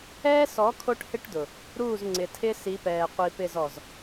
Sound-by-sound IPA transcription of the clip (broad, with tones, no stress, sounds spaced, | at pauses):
ɛː˦ s ɔ˨˦ kʰ o˦ ʈ h ɪ˦ ʈ d ʊ˨ | ɾ uː˦˨ z ŋ͡ǀ ɪ˨ tʰ ɪ˦ s i˨˦ p ɛː˨ qʷ i˨ p ɪ˦˨ z ɔ˨ z